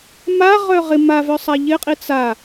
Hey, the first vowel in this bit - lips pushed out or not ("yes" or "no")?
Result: no